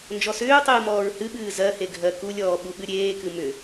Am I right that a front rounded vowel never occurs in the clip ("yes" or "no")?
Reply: no